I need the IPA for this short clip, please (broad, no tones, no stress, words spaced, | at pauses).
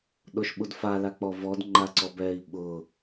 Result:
ɗoʃɓudfa lak͡pɔvɔd ŋ͡ǃaǀɔbɛi̯ ɓʊ